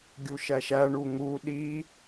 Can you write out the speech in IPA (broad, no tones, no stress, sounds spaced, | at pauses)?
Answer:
ɡʲ u ʃ æ ʃ æ ɳ u ŋ u ɗ i